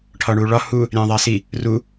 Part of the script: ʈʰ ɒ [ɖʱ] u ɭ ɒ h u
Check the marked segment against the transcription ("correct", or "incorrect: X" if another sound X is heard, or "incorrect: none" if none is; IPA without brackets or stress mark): incorrect: ɳ